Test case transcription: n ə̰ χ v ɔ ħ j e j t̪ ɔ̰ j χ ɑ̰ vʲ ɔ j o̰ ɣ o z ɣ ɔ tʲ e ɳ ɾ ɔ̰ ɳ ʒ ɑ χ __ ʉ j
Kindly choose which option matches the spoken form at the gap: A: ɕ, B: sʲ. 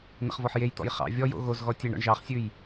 B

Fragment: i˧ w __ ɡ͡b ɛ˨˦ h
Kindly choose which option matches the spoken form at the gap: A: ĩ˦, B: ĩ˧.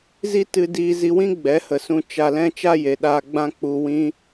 A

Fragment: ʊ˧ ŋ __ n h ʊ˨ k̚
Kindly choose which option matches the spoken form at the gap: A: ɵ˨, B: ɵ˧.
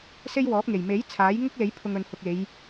A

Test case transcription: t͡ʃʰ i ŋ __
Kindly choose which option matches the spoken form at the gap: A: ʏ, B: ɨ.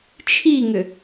A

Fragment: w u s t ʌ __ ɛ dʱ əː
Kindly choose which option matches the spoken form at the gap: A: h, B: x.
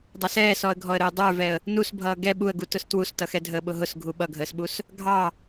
B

